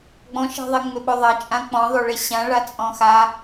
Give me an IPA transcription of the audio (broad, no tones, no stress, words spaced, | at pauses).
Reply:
ɡ͡bɔ̃ʃe̤ðˤe ŋ͡mʏɓoðˤɐ t͡ʃʼãk͡pɔ̃ðˤoɭe ɕãɭat͡sʼɔ̃ xa